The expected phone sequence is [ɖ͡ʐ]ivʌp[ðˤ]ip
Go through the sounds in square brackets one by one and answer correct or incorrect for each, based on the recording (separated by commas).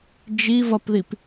incorrect, incorrect